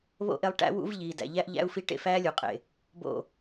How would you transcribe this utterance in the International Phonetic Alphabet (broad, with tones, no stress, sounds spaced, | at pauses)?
β o̰˦ ʔ e˧ lˠ ʈ æ̰˦ w ṵ˦ v ʎ iː˨ d æ̰˨ ʎ æ˦ ʔ ʎ æ̰˦ u̯ f i˦ ʈ ḛ˧ f æː˦ lʲ u˨ qʼ ḛ˨ | b o̰˦˨